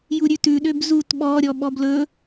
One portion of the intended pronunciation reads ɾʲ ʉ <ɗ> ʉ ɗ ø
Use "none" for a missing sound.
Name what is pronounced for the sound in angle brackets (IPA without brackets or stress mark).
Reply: t